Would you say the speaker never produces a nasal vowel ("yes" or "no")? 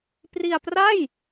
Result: yes